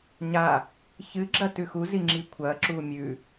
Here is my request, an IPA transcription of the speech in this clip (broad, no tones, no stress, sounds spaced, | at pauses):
ɲ a | ç ɨ ɡ͡ǁ ɐ t ʉ x u z i ŋ͡ǁ i kʷʰ ɐː ǁ uː mʲ ʉ